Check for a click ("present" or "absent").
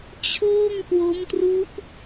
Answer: absent